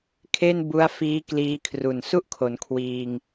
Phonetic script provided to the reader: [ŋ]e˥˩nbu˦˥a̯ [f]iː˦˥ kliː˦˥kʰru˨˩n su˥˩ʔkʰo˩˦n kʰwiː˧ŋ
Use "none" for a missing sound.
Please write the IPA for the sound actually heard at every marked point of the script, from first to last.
kʰ, f

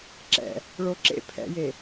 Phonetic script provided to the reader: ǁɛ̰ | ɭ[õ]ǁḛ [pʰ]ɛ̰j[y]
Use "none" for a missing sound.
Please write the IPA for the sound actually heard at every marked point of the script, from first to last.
o, pʰ, e

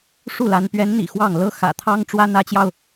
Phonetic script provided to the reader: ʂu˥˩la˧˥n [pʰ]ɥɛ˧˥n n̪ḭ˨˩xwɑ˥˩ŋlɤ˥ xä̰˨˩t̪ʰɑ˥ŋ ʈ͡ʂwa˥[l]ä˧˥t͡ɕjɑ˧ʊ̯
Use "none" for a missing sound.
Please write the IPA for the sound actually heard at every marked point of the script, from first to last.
p, n

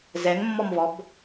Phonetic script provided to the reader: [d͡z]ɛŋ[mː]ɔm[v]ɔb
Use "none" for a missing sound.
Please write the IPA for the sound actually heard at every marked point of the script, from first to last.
z, mː, v

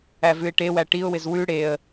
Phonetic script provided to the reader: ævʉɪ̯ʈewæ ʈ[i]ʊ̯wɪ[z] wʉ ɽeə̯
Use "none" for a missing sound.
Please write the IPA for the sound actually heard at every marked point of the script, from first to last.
i, z

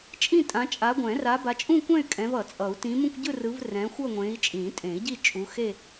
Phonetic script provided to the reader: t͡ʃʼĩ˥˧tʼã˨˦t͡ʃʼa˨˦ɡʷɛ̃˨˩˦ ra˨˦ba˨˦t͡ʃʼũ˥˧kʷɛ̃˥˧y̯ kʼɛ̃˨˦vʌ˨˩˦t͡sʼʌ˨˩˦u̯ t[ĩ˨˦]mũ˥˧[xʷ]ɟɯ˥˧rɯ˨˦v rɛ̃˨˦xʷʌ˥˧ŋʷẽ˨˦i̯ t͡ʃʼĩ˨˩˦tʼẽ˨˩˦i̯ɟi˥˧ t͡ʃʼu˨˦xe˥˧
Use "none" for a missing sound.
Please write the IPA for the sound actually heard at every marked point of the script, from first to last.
ĩ˨˦, kʷ

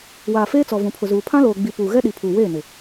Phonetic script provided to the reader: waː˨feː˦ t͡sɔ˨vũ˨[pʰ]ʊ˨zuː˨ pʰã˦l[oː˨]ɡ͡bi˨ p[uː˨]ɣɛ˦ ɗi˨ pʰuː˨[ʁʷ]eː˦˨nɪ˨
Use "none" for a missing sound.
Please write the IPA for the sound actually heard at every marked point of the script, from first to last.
pʰ, oː˨, uː˨, w

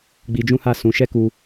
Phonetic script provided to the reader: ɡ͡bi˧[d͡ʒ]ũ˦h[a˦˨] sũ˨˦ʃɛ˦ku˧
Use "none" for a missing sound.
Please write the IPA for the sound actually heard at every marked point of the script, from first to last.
d͡ʒ, a˦˨

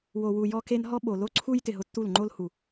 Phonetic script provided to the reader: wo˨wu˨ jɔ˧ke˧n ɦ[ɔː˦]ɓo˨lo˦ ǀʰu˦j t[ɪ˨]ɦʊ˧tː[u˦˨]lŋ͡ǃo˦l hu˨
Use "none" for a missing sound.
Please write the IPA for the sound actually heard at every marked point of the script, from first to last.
ɔ˦, ɪ˨, u˦˨

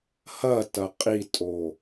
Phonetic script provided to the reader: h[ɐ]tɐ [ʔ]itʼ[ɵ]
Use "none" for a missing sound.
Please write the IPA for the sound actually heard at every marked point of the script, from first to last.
ɐ, qʼ, o

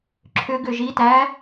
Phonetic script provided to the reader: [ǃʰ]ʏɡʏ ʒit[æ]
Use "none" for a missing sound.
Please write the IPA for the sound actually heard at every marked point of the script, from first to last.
ǁʰ, æ

